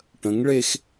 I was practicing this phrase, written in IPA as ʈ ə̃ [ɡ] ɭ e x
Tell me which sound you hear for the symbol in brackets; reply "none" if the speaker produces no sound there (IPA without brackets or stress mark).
ŋ